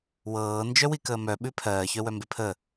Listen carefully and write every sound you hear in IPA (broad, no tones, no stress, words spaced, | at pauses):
wɤː nd͡ʒœwikəːmœ ɓʉpʰɜː çœwœmbepʰəː